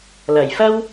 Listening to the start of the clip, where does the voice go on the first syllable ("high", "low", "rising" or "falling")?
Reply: low